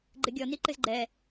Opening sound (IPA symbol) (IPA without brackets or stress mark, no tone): ɡ͡ǃ